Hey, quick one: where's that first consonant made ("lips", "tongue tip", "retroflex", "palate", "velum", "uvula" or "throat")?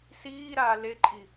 tongue tip